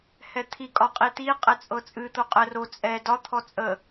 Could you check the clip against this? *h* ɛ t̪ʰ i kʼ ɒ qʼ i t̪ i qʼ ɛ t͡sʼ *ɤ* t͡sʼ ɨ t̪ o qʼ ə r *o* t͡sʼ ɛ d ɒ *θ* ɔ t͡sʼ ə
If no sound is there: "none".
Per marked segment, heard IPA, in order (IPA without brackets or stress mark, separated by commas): h, ɤ, o, t̪ʰ